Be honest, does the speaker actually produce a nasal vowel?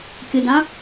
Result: yes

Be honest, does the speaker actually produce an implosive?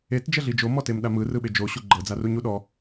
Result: yes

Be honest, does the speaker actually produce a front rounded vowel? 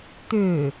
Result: yes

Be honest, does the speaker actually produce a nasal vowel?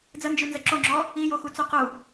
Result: no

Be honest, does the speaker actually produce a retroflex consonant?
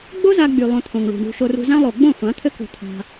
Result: yes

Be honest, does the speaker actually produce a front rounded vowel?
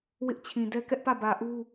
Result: no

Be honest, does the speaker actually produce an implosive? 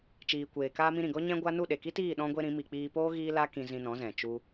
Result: yes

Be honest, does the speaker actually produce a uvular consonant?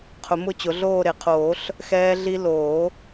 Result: yes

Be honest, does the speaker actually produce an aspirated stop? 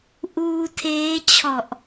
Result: yes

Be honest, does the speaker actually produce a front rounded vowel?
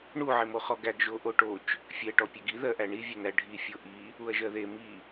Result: yes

